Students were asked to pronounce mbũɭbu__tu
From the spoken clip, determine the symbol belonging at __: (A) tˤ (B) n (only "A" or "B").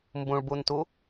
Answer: B